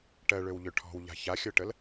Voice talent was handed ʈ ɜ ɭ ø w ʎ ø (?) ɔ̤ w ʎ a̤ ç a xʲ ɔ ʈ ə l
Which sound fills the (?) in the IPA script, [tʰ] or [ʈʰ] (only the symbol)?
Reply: ʈʰ